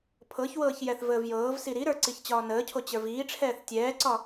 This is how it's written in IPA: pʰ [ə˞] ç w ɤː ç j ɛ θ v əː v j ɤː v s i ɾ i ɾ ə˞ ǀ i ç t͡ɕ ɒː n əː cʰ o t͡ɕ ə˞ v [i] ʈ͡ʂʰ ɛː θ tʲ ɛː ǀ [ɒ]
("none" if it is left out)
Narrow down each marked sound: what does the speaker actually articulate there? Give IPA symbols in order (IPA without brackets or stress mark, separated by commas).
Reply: ɤ, iː, ɒ